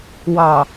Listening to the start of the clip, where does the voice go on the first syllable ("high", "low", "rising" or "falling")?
low